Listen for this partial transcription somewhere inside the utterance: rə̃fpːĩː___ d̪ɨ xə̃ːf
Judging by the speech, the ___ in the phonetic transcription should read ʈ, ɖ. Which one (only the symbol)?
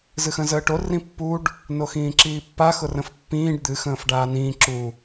ɖ